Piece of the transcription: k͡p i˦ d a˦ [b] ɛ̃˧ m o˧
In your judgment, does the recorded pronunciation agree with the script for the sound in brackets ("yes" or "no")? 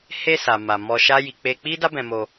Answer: yes